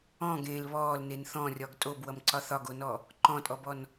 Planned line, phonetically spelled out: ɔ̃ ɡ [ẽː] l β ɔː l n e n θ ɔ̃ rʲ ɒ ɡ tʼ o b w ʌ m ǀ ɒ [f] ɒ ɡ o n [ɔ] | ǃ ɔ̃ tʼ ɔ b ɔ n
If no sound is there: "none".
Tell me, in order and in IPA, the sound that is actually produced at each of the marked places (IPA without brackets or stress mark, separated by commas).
ẽː, θ, ɔ